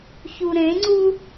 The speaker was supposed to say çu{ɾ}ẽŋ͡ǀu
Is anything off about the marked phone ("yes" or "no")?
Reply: no